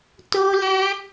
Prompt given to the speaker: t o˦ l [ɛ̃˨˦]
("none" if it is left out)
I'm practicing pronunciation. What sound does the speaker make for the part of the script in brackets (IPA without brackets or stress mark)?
ɛ̃˦